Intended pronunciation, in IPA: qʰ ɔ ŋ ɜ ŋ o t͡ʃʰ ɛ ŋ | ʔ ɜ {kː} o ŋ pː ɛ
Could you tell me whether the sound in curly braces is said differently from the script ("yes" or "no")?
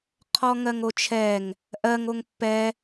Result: yes